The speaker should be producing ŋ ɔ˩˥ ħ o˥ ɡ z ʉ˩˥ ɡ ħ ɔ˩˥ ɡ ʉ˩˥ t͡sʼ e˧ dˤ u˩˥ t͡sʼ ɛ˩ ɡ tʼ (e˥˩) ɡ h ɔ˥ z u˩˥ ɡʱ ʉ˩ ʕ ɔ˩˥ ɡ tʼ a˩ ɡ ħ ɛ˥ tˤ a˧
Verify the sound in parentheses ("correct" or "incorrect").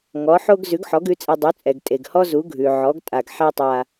incorrect